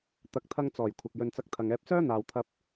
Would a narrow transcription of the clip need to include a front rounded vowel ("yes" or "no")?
yes